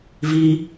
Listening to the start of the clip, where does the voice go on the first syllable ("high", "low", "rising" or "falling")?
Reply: high